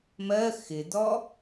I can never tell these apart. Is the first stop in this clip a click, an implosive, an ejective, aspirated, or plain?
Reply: plain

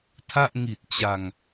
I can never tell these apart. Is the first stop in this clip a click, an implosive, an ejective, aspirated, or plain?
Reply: aspirated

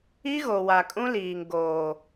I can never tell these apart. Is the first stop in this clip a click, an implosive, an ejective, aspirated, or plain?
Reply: ejective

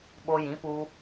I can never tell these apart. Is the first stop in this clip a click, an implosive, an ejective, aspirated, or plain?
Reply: implosive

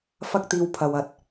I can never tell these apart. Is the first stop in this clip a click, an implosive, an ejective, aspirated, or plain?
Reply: plain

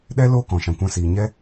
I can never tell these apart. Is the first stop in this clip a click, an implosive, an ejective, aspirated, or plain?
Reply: implosive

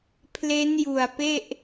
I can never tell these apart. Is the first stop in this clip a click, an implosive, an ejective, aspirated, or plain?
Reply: aspirated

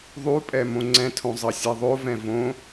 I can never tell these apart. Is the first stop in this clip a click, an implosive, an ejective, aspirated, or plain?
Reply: ejective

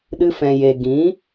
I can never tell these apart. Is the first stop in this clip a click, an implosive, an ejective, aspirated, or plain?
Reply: implosive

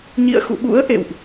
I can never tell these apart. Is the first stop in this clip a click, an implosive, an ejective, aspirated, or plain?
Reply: implosive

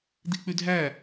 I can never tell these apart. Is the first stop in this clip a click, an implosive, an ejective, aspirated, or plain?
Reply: plain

